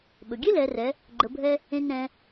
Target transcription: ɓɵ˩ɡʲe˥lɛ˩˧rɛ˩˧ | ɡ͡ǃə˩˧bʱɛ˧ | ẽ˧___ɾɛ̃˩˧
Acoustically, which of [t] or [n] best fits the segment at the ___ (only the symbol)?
n